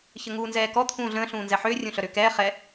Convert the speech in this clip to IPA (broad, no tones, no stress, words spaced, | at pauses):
çəŋuːnzɛːkɔ t̪ʰũːɮə̃ː ɬũːnzɛħʏː rʲũɬœɾʏːkɛː χɛ